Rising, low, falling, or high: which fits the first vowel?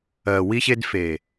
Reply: low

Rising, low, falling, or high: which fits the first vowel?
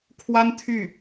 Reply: high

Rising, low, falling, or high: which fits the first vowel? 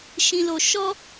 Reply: high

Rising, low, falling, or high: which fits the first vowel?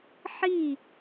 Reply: falling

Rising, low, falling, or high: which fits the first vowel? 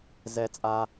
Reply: high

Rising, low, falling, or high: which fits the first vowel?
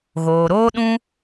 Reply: low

